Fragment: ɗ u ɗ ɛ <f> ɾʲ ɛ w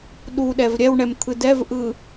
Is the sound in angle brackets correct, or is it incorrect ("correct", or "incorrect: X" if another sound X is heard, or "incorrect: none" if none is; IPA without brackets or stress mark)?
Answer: incorrect: v